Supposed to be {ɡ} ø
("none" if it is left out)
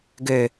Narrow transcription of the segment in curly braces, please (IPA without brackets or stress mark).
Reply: ɡ